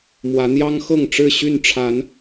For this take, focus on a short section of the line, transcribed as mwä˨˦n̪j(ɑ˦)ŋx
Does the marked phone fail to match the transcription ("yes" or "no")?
no